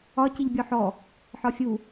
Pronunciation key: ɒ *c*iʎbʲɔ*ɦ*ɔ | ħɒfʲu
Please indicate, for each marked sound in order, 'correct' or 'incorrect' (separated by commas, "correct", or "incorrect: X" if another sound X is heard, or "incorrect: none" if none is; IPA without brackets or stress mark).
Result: correct, incorrect: ħ